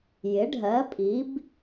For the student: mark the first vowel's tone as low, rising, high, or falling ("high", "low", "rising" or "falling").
rising